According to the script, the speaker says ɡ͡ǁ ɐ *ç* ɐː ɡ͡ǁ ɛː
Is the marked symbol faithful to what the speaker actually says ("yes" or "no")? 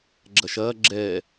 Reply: no